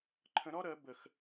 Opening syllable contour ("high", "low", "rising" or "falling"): rising